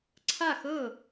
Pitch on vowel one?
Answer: falling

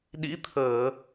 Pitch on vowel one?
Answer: rising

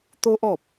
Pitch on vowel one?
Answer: high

